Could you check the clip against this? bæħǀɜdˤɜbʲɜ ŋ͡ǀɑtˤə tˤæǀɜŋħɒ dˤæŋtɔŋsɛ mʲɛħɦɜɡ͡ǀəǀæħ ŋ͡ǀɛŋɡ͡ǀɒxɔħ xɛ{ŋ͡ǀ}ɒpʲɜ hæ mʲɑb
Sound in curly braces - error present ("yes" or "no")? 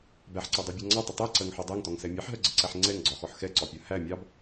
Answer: yes